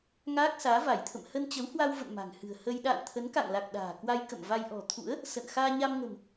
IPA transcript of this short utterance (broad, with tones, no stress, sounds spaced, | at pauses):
ŋ aː˦˥ k̚ s aː˨˦ v a˧˩ j t̪ʰ ə̰˧˨ m h ə˧ n t͡ɕ ə˨˦ w h w a˧ w v ə̰˧˨ n m a̤˨˩ ŋ h ɨ̤˨˩ ə̯ h ə˧ j ɗ a̰ː˧˨ n t̪ʰ ə˨˦ n k a̰˧˨ ŋ l a˨˩ k̚ ɗ a̤ː˨˩ k w a˧ j k ə̰˧˨ m v a˧ j ʔ ɔ̤˨˩ t̪ʰ ṵ˧˥ ə̯ | s ə̰˧˨ n x aː˧ ɲ a˧ m ŋ ə̤˨˩ m